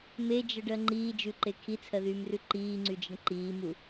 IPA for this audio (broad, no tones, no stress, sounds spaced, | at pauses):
m e d͡ʒ ə ɖ ɜ ŋ͡ǃ iː d͡ʒ ʉ ǃ e kʰ i t͡sʰ ɜ ð yː m r ʉ ǃ iː ŋ͡ǀ y d͡ʒ ə ɳ ǃ iː m u